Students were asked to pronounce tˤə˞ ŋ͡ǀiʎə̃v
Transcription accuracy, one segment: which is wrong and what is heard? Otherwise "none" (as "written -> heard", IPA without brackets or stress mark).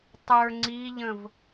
none